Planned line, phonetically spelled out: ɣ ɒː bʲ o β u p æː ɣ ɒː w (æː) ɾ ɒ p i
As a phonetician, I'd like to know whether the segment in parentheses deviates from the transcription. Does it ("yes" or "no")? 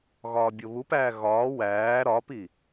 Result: no